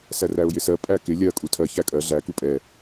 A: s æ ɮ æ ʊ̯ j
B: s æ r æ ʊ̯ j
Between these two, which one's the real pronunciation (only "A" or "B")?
B